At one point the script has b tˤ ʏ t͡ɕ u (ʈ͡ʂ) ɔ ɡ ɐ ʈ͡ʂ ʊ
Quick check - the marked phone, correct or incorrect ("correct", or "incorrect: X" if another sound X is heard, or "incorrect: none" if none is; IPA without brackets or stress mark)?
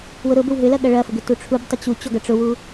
incorrect: t͡ɕ